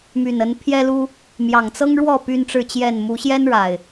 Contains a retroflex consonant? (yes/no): yes